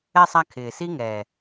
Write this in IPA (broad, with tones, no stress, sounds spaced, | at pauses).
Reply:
ɛ˧ sˤ a˧ kʰ ɪː˨ s i˦ ŋ ɛː˨